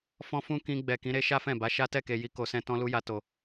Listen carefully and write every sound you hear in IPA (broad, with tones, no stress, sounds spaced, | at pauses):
f ɔ̃˦ f ũ˦ k ĩ˧ ɡ͡b ɛ˨ k ĩ˨˦ ɾ e˦ ʃ a˦ f ɛ̃˦˨ b a˨˦ ʃ a˦ t ɛ˦˨ k e˨ j i˨˦ k o˧ s ɛ̃˦ t ɔ̃˧ l u˧ j a˨ t o˨